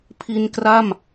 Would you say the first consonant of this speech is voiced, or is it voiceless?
voiceless